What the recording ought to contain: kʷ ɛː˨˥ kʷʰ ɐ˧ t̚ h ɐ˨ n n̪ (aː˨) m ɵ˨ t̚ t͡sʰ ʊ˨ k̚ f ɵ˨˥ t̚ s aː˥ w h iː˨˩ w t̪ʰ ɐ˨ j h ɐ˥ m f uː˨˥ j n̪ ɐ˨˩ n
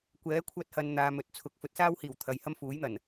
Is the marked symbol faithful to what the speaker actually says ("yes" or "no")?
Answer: no